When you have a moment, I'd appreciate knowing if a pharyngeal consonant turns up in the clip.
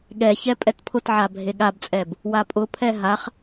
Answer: yes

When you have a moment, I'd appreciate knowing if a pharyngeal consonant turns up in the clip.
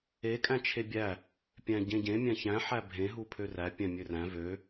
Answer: yes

